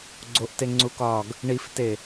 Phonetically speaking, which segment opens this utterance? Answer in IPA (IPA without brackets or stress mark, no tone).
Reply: ɡ͡ǀ